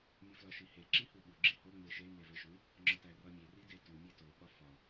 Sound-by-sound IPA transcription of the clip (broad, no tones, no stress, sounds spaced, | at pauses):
mʲ u f l ɒ ʃ i h e ǁ i h u ɓ u ɡ͡ǁ i h o ŋ͡m e ʃ e m e v e ʃ u | ŋ͡ǁ ɒ t æ r ɒ mʲ e r i d e t u mʲ e t o ɓ ɒ f ɒ